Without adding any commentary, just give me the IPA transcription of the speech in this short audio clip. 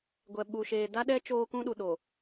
ɡʷ ɛ˨ ɓ u˨ ʃ eː˨ d a˦ ɗ ɛ˦ t͡ʃ oː˦ k ũ˦ ɗ u˨ ɗ o˨

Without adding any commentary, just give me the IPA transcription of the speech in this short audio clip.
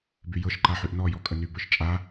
b y j ɤ ʃ ǃ a ħ y ʔ n ɔ j ɔ kʼ ə n y b ə˞ ʃ t͡ʃʼ a

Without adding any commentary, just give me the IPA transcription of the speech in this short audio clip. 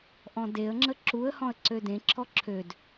ʔ ɔ̃ d e ə̯ ŋ͡ǁ ə ǁ u ə̯ h ɔ̃ ə̯ ǀ ø d ẽ ǁʰ ɔ ǁʰ ø d

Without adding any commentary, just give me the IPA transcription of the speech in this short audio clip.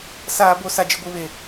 s aː˦ b o˦ s a˦ d͡ʒ ɪ˦ ɡʷ i˦ β e˦

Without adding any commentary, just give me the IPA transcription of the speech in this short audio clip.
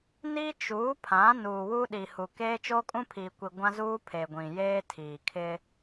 n i˦ t͡ʃ uː˨˦ pʰ ã˨˦ n uː˨ w u˦ ɗ i˨ h u˨ k eː˦ t͡ʃ oː˦ kʼ ũ˦ pʰ iː˨ kʷ i˨ ɡʷ ã˦ z uː˦ pʰ e˨ ɡʷ ĩ˨ j eː˦ tʰ iː˨ kʰ ɪ˦

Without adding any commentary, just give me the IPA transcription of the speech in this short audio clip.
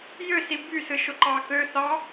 j ø s i b y s ɯ ʃ o ǃ ɑ k ø θ ɑ

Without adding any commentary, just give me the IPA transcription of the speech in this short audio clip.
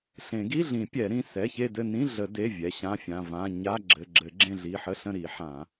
ɬ ẽ˨˩˦ ɡ i˧˥˧ ɮ ĩ˨˩˦ pʲ ɛ˨˩˦ ɾ ĩ˩˧˩ s ɛ˩˧˩ ç e˦˨ d ɘ˦˨ n ĩ˧˥˧ ɮ ə˨˩˦ d e˩˧˩ vʲ ɛ˩˧˩ ɕ ã˧˥˧ fʲ ã˩˧˩ v ã˧˥˧ ɲ a˧˥˧ ɡ͡ǁ ɘ˩˧˩ ɡ͡ǁ ɘ˨˩˦ ɡ͡ǁ ẽ˦˨ ɮ i˩˧˩ ħ ə˧˥˧ ɬ ə̃˦˨ ɾ i˨˩˦ ħ ã˨˩˦

